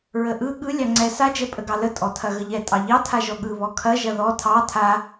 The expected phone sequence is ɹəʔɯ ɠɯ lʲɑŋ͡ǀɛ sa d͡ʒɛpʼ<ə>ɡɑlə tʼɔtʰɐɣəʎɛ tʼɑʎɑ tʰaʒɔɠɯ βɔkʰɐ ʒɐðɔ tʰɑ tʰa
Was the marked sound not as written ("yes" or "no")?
no